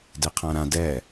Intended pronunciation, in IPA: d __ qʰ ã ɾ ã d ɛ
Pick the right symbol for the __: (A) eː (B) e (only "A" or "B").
B